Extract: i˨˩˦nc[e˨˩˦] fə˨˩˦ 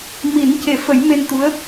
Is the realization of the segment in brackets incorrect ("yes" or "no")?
no